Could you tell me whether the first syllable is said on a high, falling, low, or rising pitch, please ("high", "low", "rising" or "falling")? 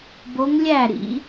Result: rising